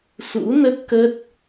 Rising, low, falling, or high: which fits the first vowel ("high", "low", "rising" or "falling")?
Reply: rising